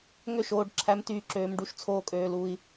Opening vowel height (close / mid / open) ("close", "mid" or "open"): mid